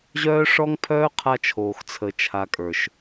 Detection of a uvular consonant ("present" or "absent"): present